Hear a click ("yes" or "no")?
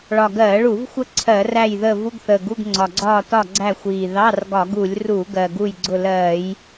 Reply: yes